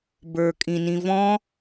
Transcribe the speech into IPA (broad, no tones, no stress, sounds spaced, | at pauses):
b ə˞ kʼ ĩ n ĩ v ɔ̃